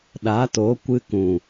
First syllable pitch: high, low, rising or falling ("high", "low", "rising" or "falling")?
rising